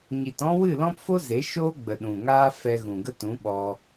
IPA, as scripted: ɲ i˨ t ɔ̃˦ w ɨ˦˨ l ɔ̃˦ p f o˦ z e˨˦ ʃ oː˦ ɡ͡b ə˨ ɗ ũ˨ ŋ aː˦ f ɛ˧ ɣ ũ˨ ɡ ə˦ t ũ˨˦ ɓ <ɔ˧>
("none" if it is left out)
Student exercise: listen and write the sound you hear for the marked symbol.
ɔ˧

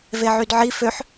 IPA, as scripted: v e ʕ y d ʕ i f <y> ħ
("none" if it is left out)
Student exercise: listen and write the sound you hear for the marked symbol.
ø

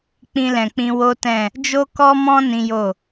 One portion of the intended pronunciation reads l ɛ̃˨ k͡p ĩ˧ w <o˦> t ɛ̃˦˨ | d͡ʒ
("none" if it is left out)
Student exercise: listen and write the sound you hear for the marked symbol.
o˦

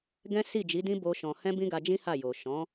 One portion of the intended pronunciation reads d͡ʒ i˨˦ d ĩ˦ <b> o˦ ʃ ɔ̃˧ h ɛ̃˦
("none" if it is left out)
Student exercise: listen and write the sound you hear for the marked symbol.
b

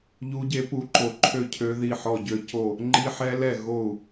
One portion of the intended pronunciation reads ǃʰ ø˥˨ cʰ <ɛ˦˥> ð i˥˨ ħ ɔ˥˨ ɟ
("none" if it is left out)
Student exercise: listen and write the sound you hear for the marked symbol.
ø˦˥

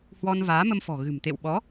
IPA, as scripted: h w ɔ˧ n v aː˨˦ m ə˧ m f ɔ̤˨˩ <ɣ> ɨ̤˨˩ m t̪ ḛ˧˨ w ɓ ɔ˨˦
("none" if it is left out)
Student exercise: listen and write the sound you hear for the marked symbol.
ɣ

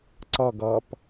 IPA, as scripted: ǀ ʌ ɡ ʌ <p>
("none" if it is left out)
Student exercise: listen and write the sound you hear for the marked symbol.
p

